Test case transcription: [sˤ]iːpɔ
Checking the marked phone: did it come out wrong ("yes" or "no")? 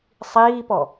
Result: no